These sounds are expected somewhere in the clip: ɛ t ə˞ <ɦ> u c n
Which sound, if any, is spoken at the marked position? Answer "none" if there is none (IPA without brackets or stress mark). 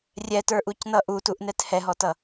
ʔ